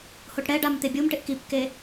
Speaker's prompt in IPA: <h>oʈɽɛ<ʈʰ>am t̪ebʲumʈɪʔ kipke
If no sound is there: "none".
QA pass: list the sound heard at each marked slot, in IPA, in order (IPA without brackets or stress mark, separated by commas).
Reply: h, ɖ